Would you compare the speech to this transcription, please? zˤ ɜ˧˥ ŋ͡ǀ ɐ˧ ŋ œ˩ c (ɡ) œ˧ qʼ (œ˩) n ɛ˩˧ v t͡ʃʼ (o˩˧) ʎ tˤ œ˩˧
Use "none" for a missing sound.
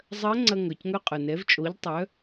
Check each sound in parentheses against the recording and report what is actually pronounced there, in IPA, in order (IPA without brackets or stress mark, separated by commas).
ŋ, œ˩, o˩˧